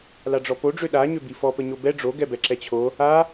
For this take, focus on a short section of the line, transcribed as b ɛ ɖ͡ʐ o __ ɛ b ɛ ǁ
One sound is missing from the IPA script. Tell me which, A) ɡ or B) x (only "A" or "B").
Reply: A